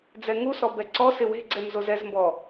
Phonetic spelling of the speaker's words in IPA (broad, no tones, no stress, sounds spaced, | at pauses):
d͡z ɛ ŋ u s ɔ b ɛ ǀ ɔ s ɪ w e̤ ɡ͡ǀ ɛ m z o z ɛ z m b ɔ